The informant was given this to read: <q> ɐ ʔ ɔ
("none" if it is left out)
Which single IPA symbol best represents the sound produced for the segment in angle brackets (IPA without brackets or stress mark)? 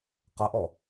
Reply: q